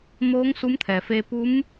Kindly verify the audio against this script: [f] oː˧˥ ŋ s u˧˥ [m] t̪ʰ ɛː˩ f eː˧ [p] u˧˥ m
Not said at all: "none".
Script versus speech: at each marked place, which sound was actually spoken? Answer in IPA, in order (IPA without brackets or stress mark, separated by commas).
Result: m, m, p